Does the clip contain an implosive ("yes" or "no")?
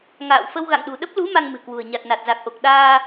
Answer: yes